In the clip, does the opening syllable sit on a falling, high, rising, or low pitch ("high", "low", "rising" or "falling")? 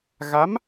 rising